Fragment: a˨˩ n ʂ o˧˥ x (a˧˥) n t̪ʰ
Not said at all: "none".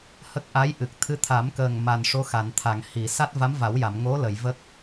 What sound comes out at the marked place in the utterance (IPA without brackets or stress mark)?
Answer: a˨˩˨